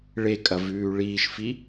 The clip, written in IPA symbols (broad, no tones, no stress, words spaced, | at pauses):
ɭekʼɐvʉː ɭiːʃfi